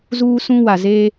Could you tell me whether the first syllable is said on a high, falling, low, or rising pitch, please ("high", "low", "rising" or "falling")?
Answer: high